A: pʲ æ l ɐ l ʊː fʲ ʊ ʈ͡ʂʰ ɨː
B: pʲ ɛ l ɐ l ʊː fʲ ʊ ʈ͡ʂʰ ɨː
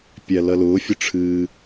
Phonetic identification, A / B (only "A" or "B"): A